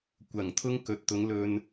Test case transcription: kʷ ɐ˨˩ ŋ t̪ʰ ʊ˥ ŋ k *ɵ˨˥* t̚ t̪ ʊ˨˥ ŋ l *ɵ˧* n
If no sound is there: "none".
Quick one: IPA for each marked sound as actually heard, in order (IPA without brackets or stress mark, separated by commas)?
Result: ɵ˨˥, ɵ˧